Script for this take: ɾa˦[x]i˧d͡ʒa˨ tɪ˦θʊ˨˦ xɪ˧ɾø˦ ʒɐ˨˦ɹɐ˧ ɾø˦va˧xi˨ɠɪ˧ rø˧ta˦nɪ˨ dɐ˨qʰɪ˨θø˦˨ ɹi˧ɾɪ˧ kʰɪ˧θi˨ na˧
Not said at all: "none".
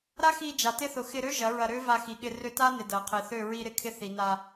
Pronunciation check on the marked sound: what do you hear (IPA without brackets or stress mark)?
x